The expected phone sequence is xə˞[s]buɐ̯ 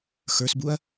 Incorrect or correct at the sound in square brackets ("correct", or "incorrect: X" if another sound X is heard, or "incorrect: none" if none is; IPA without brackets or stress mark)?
correct